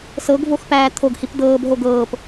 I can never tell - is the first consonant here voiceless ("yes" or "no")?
yes